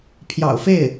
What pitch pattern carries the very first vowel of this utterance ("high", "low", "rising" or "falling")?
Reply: low